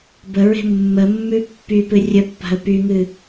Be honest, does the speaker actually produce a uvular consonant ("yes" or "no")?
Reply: no